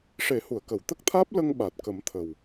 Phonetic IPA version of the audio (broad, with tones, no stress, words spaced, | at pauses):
ʂe˨˩˦hu˨˩˨ə̯ kə˨˩˨wt̪ə˦˥k̚t̪ʰaː˦˥p̚ lə˧ŋɓa˨˩t̚kə˨˩˦m t̪ʰə˨˩w